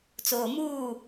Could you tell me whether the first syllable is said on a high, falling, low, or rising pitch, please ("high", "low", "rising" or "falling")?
low